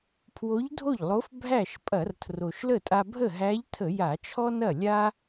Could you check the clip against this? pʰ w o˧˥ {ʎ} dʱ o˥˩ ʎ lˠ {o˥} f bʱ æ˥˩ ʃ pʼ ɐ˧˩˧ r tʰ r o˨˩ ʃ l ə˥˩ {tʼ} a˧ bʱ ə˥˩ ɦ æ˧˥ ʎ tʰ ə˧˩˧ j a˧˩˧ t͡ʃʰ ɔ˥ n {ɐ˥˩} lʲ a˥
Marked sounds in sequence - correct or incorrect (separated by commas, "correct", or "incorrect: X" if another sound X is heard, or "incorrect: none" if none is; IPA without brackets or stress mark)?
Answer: correct, incorrect: o˧˥, correct, correct